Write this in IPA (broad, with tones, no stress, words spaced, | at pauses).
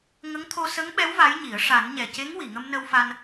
ŋə˧˥ŋt̪ʰo˧sə˧˥ŋɓɛ˧˥w va˧˥jɲi˨˩˦ə̯ ʂa˨˩˦nɲɛ˨˩ce˧˥ŋ wi˨˩˨ŋə˧m nə˧wfa˧n